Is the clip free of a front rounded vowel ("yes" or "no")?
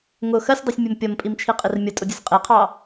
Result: yes